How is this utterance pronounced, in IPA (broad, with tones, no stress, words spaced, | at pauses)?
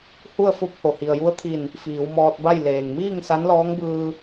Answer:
hu˥˨ə̯fo˧˥p̚ ho˩hi˩ə̯ju˧˥ə̯t̪ʰi˧˩n | fiː˩˧wmɔː˧t̚ba˥˨j leː˩ŋmiː˥˨ŋ sa˧˥nlɔː˧˥ŋbɯː˧